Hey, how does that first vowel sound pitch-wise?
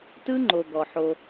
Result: high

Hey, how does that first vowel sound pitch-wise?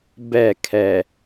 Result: falling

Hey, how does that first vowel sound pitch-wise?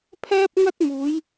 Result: high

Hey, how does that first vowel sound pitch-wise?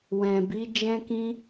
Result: low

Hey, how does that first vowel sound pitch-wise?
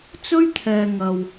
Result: high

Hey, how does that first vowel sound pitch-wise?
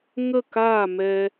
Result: falling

